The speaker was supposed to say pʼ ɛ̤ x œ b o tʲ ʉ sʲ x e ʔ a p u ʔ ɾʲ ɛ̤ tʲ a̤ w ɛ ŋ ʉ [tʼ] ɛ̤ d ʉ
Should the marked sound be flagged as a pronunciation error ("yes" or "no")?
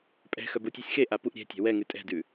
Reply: no